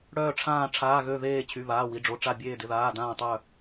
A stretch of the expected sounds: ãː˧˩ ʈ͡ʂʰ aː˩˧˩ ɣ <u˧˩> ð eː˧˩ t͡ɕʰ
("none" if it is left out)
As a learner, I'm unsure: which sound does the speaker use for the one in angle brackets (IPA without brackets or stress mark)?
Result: ø˧˩